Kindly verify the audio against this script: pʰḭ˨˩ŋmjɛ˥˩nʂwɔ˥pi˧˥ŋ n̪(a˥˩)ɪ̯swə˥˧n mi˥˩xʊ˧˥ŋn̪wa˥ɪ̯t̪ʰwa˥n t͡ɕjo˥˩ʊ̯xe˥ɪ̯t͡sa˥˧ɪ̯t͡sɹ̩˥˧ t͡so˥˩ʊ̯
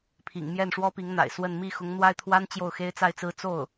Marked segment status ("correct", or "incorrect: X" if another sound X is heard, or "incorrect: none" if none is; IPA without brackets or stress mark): incorrect: a̰˨˩